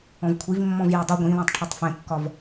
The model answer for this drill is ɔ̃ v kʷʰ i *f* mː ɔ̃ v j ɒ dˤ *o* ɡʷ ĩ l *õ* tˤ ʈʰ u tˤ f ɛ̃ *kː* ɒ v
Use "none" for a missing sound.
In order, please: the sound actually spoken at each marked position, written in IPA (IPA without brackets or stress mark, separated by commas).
v, u, ɔ̃, kː